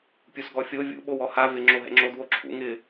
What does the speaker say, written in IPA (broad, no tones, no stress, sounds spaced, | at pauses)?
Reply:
pʲ u s ɡ ɔ fʲ o vʲ ṵ ɓ o w ɔ h a v ɪ ŋ͡ǁ o ɦ ɛ̰ ŋ͡ǁ o d w o ǁʰ ṵ ŋ ɪ